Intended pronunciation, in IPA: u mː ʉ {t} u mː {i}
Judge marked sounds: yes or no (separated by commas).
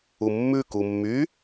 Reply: no, no